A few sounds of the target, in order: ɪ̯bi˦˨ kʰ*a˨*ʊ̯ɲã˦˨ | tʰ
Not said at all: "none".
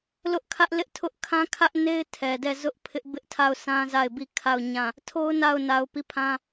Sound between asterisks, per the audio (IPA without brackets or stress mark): a˦˨